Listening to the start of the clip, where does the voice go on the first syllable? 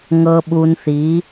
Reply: low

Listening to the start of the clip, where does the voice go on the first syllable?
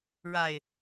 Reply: low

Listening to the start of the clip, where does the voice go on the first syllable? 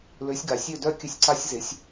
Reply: rising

